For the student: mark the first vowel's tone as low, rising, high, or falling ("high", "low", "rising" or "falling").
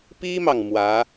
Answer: high